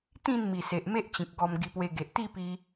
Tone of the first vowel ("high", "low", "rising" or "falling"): falling